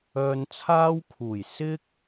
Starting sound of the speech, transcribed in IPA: œː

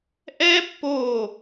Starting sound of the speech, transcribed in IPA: ʔ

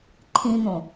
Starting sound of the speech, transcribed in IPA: ǃʰ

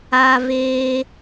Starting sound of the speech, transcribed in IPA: aː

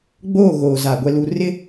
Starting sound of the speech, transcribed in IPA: ɡ͡b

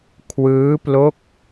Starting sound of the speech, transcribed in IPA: kʰ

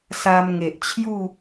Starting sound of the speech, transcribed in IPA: s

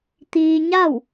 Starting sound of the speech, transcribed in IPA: t̪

